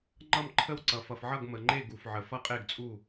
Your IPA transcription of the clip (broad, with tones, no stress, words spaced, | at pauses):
ŋ͡ǃʌ˥˩mǃʰə˥˩wǀʌ˩ fʌ˩fʕʌ˥˩ɡmə˩ŋ͡ǃe˥˩ ɡu˩fʕə˩ fʌ˥˩qʼe˥˩ɡt͡sʼu˥˩